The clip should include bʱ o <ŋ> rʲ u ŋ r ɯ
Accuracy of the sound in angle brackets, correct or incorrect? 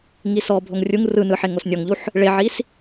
correct